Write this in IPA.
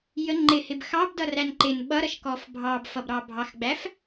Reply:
jə ŋ͡ǃɪhɪb xɑbdʌræn ǃɪn ɓʌɾʌʃkɔf bʱɑbfʌbɾɑ bʱɑxɡ͡bæf

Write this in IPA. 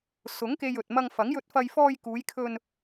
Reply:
sʊ˨˥ŋke˧jɵ˨t̚ mɐ˧ŋfɐ˨˥ŋjɵ˧t̚fɐ˧j fɔː˧jkuː˨˧jkʰɵ˧n

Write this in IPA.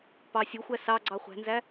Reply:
pɑsʲoxʷæ sɑɡ͡ǀɑ χʷæ̤nzæ

